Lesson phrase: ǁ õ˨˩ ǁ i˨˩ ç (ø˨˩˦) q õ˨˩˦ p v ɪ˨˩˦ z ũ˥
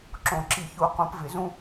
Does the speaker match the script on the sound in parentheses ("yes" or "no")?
no